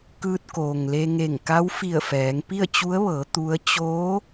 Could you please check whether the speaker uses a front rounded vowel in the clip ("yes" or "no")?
no